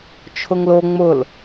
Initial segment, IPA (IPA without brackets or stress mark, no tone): t͡ʃʰ